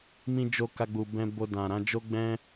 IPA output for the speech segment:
m ĩ˧ d͡ʒ o˧ k a˧ ɡ͡b u˨ b ɛ̃˧ b o˧ d ã˨ ɾ ã˨˦ d͡ʒ o˦ ɡ͡b ɛ̃˦

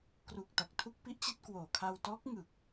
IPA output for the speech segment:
k r u˨˩ k̚ t a˨˩ k̚ tʰ u˥˩ k̚ p i˥˩ ʔ t͡ɕ i˥˩ t̚ k w oː˨˩ kʰ a˧ w t ɔː˦˥ k̚ ŋ ɯ˨˩ k̚

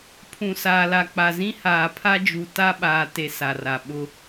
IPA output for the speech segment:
pʰ ũ˨ s aː˨ l a˨ k͡p a˨ z ĩ˦ h aː˨ pʰ a˦ d͡ʒ u˨ t a˦ ɓ aː˨ t e˨ s a˨ r a˨ ɓ ʊ˦

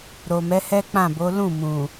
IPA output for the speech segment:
ɾ o˨ m ɛ˨˦ h ɛ˦ k͡p ã˦˨ b o˨˦ l ũ˦˨ m ũ˨

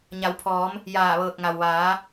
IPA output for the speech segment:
ɲ a˩˧ w pʰ ɔː˩˧ m | j aː˧˩ ʋ ɤː˧˩ k̚ ŋ a˩ w ʋ aː˩˧

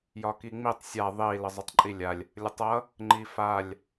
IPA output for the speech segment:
j ɒ k i ŋ͡m i tˤ sʲ a ðˤ i l ə zˤ ʌ tˤ ǃʼ i lʲ a lʲ | lʲ ə tˤ ʌ | ŋ͡ǃ i f a lʲ

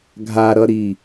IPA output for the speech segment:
ɡʱ a ɾ ʌ ɾ i

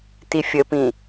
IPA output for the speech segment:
t i fʲ ə p ĩ

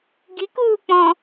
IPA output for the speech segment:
ɡ i k uː k͡p ɔ̃

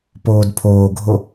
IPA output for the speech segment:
p oː d pʰ oː ɡʱ o

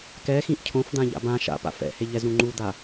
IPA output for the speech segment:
k ɛ x ĩ ʔ cʰ õ f d̪ ã ʎ a̰ b ã ʃ a̰ p a̰ f ɛ̰ h e ʎ ɛ z ɾ ũ ŋ͡ǃ u d̪ a

